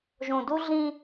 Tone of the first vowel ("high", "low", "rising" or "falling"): low